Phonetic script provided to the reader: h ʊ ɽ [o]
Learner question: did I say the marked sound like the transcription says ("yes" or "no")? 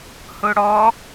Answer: no